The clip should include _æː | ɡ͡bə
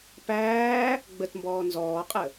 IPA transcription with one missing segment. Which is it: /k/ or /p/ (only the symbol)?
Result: p